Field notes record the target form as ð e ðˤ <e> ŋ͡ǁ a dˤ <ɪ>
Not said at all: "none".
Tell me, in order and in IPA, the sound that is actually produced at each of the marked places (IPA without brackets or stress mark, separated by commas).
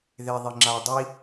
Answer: i, i